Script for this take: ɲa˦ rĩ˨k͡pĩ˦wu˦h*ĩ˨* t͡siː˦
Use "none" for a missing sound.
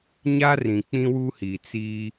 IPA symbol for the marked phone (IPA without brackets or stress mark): i˨